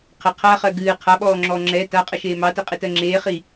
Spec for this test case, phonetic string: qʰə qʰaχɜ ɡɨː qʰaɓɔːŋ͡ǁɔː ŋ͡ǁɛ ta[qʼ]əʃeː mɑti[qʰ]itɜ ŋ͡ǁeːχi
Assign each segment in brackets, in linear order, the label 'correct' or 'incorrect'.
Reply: correct, incorrect

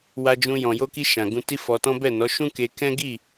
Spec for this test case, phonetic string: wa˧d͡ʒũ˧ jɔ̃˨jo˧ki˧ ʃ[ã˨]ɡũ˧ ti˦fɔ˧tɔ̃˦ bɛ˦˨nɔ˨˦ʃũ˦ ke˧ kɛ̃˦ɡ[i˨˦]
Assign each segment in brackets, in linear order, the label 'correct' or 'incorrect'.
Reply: correct, incorrect

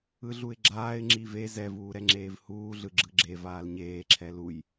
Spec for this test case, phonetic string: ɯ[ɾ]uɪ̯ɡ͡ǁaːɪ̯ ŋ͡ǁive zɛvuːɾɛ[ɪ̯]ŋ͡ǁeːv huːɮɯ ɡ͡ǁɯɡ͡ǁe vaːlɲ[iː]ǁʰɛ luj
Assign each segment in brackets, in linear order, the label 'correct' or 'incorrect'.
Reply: incorrect, incorrect, incorrect

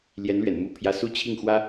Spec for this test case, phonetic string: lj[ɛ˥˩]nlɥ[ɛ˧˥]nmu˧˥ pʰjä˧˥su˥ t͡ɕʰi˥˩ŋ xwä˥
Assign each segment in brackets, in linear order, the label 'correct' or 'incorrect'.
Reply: incorrect, incorrect

